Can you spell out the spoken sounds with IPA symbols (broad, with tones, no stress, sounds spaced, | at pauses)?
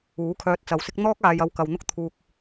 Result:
uː˨˥ kʰ œː˧ t̚ t͡s ɐ˨˧ w s ɪ˥ k̚ n̪ ɔː˥ k̚ aː˨ j ɐ˧ w k ɐ˨ w n̪ ʊ˥ k̚ t̪ʰ uː˨ k̚